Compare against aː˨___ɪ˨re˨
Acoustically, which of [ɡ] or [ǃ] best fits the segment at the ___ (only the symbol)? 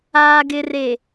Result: ɡ